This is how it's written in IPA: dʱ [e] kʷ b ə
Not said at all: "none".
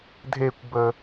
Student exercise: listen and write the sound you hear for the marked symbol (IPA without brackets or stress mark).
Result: e